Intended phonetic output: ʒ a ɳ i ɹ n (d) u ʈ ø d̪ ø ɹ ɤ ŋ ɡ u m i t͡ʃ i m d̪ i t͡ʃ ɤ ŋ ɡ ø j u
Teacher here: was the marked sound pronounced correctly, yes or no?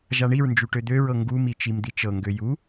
no